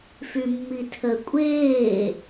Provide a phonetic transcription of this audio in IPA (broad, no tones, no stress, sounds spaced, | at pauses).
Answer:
f y mː i tʰ ə kʷʼ eː